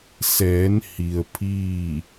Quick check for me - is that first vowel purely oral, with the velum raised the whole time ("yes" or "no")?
yes